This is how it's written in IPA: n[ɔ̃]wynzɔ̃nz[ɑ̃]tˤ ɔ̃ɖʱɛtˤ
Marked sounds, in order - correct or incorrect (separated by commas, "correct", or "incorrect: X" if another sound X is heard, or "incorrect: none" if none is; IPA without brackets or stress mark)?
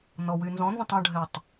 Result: incorrect: ɔ, incorrect: ə̃